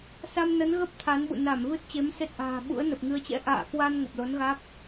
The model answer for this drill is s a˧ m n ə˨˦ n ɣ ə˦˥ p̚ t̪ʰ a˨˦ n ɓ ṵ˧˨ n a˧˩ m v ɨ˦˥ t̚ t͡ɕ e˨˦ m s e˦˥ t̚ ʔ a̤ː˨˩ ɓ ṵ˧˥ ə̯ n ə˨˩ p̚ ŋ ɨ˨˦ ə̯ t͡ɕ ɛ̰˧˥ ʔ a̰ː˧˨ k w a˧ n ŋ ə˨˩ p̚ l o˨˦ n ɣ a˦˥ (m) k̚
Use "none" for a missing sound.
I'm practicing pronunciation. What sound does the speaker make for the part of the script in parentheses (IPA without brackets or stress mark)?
none